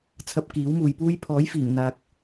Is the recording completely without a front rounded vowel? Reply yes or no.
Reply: yes